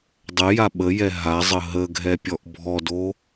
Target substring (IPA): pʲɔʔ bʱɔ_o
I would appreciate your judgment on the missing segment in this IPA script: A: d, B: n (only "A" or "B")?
A